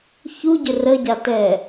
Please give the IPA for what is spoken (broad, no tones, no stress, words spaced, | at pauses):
çuɟʏ rəɟatɛ